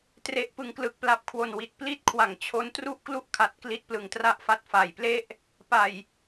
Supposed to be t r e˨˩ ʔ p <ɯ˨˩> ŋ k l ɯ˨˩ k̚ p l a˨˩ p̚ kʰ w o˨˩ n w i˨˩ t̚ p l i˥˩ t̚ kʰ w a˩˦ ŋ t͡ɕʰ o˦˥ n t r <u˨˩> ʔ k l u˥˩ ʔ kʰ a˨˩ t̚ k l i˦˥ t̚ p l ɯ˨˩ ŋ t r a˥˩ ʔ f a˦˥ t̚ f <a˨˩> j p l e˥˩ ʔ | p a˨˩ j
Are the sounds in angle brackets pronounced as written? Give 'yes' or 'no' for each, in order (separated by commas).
yes, no, yes